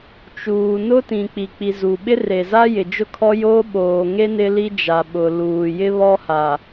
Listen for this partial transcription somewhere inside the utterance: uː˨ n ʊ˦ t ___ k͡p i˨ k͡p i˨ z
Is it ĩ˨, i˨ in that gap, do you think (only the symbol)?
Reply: ĩ˨